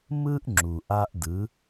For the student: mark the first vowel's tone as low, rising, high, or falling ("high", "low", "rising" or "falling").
high